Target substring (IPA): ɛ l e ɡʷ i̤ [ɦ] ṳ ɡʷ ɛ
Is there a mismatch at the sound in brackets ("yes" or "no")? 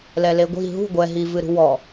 no